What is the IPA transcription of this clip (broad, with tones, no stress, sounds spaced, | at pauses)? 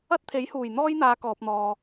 ɐ˥ t̚ t̪ʰ e˨˥ j h uː˨˩ j n̪ ɔː˥ j n̪ aː˨˧ k ɔː˨ p̚ n̪ ɔː˨